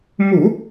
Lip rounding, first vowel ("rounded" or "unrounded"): rounded